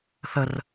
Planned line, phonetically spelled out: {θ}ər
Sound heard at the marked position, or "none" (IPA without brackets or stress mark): θ